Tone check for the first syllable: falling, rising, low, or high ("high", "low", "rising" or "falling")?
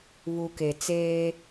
low